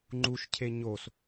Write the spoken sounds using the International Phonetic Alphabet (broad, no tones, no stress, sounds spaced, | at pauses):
ŋ͡ǃ u ʃ cʰ e ɲ o s